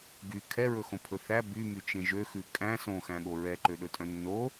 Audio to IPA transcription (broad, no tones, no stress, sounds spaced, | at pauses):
ɡ y kʰ ɛ ɹ ɵ x õ pʰ ɵ θ æ b y m y t͡ʃ ẽ ʒ ø x ʉ kʼ æ̃ s õ x æ̃ ɠ o ɹ ɛ ǃ ø ɗ ɵ tʼ œ̃ nː o